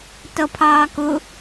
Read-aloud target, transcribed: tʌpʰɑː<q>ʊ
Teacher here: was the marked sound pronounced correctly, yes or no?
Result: no